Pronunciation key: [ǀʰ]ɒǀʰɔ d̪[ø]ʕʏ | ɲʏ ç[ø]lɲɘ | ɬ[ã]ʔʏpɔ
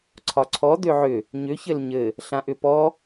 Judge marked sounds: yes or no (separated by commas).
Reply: yes, yes, no, yes